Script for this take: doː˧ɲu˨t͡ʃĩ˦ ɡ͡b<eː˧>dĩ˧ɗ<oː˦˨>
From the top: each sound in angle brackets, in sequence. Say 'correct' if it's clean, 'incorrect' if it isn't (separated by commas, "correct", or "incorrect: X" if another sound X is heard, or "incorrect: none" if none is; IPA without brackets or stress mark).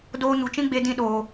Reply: incorrect: e˧, incorrect: oː˨